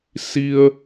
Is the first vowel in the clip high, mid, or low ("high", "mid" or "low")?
high